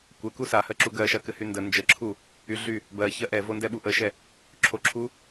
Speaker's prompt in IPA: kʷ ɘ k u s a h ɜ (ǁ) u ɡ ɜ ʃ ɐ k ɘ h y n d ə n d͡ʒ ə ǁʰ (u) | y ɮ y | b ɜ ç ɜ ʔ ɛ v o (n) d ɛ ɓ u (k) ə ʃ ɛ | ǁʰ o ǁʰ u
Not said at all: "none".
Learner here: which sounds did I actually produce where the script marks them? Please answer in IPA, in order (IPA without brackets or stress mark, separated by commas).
ǁ, u, n, ʔ